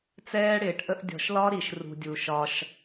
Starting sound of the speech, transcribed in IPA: t͡s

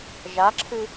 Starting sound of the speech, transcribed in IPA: ʒ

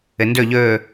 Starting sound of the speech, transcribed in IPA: ɘ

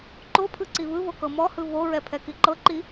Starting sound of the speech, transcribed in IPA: ǃ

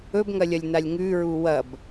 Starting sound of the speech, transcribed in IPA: ɵ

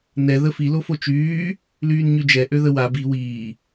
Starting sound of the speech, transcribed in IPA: n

